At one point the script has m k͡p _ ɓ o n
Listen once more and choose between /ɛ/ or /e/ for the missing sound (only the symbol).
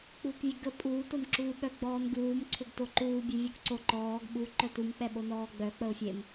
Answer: ɛ